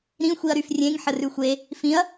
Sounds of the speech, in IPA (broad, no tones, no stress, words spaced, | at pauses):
ɾĩ xʷiɐ̯ɾyfrʲẽŋ ħərʉxʷe | fĩɐ̯